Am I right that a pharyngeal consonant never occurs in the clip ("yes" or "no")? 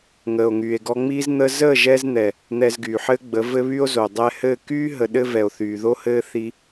no